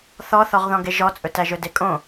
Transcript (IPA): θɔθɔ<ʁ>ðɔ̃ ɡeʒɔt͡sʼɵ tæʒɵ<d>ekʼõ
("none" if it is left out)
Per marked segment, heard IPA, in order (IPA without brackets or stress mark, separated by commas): ʁ, d